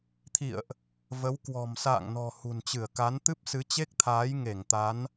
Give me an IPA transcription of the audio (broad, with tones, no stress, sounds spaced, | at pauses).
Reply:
t̪ʰ ḭ˧˨ ə̯ ʔ | v ə˨˦ w k w ɔ̤˨˩ m s a̰ː˧˨ ŋ n ɔ̤˨˩ h ṳ˨˩ n t͡ɕ ɨ˧˩ ə̯ k a˨˦ n t̪ ɨ˦˥ p̚ s ɨ˨˦ t͡ɕ e˦˥ k̚ t̪ʰ aː˨˦ j ŋ e˧˩ ŋ t̪ a˨˦ n